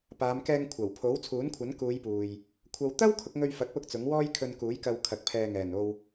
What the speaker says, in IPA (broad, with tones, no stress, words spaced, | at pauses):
paː˨˧mkɛː˧ŋ kʷʰɐ˨˩wpʰo˨˥w t͡sʰuː˨˥nkʷʰɐ˨˥n kuː˨˧j puː˨j | kʷʰɐ˧w t̪ɐ˥w kʰʊ˨˥k̚ŋɵ˧ɥfɐ˨˥k̚pʊ˧k̚ t͡sʊ˨˥ŋwɔː˥jkʰɵ˧nkuː˨˥j kɐ˨w kʰɐ˨k̚pʰɛː˨ŋɛː˨˩n o˨w